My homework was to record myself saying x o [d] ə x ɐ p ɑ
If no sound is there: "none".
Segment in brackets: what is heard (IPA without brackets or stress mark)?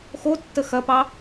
tː